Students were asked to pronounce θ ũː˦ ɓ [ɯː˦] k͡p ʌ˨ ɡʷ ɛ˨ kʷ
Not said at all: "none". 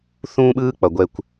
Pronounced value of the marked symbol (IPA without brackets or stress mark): ɯː˦